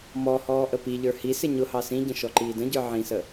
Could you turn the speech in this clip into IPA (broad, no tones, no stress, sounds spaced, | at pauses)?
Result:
m ɔ h ɔː ʔ ə p i ʎ ə˞ h i s ɪ ɲ ʊ h ɑ s ĩ ɟ ə̃ ʃ ɔ ǃ iː d ə̃ ɟ ə˞ ʕ ĩ s ə